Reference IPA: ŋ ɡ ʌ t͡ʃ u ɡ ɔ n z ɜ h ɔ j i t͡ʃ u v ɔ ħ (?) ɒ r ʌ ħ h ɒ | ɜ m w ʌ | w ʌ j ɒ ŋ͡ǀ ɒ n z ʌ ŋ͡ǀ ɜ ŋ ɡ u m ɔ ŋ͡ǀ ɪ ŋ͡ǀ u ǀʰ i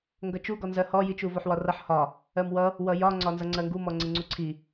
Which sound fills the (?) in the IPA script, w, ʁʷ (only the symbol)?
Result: w